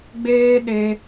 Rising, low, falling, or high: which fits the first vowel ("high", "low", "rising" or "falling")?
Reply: high